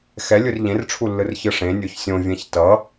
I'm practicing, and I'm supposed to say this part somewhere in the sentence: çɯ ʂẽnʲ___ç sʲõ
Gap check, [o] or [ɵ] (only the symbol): o